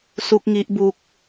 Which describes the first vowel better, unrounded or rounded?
rounded